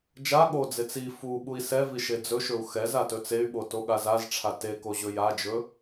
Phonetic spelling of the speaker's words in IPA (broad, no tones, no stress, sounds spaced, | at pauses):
d͡ʒ a ɠ o d͡z e t͡s i f u ɓ u i̯ s ɛ v i ʃ e d͡z ɵ ʃ ɵ u̯ x ɛ z a t ɵ t͡s e y̯ ɓ o t o ɠ a z a z ʈ͡ʂʰ a t e k o ʑ ɵ j a d͡ʒ ɵ